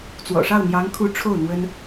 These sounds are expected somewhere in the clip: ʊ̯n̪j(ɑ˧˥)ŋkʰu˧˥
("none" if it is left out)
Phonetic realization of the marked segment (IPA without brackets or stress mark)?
ɑ˧˥